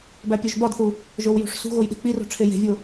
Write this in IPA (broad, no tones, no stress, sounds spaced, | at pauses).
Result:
b æ pʲ o ʒ b ɒ d θ u | ʒ o w j ṳ ʂ s ṳ ɣ o j ɗ e̤ k͡p i r o̤ ʈ͡ʂʰ e j e̤ vʲ o